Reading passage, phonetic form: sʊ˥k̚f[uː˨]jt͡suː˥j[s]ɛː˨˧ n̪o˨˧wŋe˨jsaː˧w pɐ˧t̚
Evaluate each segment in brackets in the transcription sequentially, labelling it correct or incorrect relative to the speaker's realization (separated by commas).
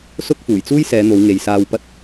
incorrect, correct